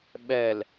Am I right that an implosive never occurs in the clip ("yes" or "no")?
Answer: no